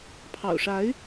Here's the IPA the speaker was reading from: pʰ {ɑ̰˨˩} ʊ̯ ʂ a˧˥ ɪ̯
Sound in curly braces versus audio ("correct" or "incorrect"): correct